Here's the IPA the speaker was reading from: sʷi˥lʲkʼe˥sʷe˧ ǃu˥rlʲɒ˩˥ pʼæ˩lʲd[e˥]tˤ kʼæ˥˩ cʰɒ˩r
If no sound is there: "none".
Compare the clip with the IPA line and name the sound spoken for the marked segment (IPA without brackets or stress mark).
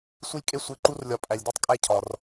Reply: e˥˩